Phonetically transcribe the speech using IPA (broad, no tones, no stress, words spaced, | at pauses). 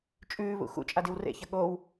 t͡ʃʼʉːβṵ xṵt͡ʃʼadiw rḛçɐ ɠow